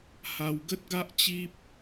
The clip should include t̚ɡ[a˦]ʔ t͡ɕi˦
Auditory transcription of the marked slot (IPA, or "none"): a˦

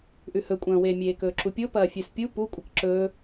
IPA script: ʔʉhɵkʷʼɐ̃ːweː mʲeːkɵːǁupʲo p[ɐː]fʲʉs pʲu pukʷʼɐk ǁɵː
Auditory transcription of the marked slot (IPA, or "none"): ɐː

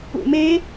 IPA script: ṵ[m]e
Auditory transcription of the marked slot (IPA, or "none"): m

